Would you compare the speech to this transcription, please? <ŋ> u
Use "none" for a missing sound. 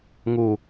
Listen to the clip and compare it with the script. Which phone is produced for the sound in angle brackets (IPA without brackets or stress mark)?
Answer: ŋ